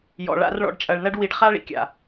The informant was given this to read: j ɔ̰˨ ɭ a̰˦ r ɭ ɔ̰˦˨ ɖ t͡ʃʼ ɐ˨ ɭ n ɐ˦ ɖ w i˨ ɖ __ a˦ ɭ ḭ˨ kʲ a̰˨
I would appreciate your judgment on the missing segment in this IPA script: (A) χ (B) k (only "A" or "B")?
A